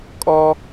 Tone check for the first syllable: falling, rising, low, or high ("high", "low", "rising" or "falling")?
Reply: high